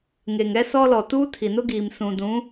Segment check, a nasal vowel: present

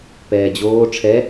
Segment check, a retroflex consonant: present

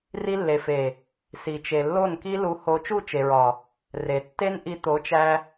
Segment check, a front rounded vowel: absent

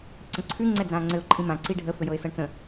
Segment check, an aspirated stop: present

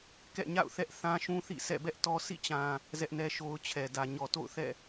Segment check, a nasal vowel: present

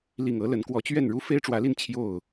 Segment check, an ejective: absent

